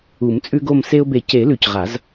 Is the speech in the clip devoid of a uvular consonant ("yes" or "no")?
no